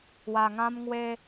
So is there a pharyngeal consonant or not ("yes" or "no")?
no